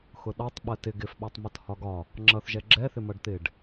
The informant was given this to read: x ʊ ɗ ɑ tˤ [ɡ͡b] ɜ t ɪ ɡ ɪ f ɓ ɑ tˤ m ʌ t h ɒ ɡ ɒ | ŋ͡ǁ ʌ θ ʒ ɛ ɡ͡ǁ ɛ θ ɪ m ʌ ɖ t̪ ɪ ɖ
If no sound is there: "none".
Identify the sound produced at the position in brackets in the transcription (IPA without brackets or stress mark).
ɓ